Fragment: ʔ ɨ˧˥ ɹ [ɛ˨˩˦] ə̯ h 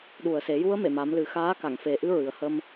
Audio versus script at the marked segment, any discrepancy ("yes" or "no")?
yes